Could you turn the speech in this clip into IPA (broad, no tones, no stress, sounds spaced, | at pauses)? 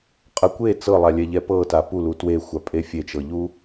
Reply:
qʼ ə kʷ e t͡s ɤ lˠ a lʲ ɛ ʎ ɛ p ɤ t a p u l u t w e xʷ a pʼ e fʲ e t͡ʃ ɤ ʎ u